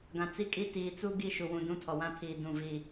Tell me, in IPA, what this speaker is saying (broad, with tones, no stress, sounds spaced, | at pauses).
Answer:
ɡ ã˨ t͡s i˦ kʼ i˦ t iː˨ t͡s u˦ ɡ i˦ ʃ u˨ w ũ˨ d ũ˦ tʰ ɔ˨ w ã˦ pʰ iː˨ d ũ˦˨ v i˦˨